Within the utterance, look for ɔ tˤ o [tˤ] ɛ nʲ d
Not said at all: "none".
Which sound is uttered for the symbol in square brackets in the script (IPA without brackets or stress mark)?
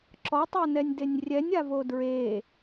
n